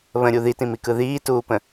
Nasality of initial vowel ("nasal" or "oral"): nasal